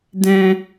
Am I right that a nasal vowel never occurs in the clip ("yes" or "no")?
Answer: no